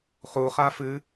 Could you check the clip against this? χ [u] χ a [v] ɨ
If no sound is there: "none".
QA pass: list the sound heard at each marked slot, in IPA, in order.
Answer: u, f

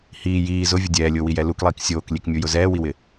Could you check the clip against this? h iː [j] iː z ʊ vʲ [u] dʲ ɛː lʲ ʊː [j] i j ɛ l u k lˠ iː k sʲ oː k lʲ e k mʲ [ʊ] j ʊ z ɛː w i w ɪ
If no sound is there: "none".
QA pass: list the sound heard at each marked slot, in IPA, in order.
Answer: j, ʊ, w, u

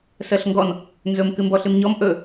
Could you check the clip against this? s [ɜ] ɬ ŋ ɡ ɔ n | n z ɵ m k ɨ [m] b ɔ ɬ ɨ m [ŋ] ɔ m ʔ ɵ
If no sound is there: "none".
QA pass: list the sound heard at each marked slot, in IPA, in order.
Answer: ɜ, m, ɲ

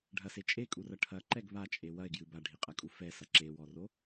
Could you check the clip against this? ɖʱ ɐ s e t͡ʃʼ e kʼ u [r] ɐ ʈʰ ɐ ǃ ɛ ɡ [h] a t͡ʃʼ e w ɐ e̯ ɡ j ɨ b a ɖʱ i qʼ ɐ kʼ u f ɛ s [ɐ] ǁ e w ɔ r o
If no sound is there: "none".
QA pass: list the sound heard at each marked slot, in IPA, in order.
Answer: r, β, ɐ

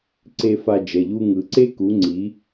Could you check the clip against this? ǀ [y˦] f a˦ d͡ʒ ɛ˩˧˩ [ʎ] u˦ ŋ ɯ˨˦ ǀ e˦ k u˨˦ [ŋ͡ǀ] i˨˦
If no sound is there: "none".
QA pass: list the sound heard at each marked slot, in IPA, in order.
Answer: e˦, ʎ, ŋ͡ǀ

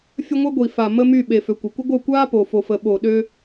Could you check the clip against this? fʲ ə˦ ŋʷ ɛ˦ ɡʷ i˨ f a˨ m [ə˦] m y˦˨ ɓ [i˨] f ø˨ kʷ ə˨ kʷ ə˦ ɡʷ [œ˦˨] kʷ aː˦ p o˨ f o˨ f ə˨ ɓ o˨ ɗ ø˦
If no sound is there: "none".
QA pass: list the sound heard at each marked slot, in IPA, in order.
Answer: ə˦, e˨, œ˦˨

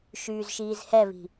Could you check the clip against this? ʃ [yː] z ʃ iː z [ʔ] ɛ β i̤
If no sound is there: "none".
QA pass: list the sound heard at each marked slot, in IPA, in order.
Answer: yː, h

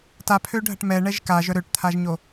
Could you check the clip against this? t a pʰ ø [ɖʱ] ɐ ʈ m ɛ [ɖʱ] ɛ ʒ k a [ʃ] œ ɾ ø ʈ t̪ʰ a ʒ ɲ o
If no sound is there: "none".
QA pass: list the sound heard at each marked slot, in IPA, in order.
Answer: ɖʱ, ɳ, ʒ

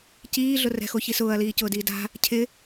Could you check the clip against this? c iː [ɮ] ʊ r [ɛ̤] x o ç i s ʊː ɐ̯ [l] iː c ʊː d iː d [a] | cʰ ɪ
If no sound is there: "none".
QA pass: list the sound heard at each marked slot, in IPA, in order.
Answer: ɮ, ɛ̤, l, a̤

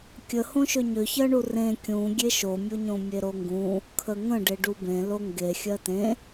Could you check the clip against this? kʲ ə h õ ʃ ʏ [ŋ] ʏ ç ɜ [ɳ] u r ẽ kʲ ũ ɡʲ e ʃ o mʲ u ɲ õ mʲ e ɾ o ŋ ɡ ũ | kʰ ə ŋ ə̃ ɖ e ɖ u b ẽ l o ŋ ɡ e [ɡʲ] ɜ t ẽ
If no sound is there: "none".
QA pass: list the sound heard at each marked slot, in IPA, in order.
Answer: ɲ, ɳ, xʲ

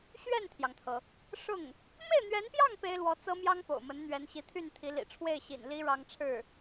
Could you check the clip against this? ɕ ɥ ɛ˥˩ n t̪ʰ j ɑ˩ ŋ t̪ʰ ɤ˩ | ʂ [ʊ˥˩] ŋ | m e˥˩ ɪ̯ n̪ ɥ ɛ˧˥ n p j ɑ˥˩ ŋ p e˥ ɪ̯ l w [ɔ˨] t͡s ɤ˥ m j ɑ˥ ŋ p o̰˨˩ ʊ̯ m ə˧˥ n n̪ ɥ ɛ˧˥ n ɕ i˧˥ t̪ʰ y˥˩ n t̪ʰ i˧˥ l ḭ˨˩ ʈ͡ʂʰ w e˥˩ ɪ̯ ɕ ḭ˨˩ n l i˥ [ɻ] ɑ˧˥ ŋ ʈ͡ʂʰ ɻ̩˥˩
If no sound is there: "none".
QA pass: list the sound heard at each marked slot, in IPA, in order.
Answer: ʊ˥˩, ɔ˧˥, ɻ

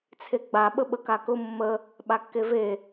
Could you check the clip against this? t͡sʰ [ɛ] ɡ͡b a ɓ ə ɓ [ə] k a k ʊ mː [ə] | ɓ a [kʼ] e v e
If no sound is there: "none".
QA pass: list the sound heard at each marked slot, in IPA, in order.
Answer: e, ə, ə, kː

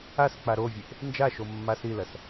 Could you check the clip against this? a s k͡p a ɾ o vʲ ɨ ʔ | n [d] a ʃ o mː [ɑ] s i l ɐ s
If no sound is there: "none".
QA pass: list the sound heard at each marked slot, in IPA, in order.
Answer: d͡ʒ, a

